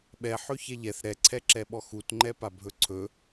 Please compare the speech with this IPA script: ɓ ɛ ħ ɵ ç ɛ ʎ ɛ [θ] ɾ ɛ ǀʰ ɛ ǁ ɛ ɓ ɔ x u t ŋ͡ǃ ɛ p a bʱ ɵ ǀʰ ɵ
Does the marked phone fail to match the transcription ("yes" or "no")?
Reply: no